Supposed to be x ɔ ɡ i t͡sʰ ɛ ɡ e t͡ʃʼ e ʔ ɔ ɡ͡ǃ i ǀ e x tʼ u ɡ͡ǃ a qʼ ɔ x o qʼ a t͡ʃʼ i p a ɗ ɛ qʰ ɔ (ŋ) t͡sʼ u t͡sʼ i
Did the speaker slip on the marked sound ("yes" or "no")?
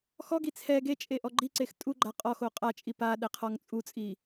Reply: no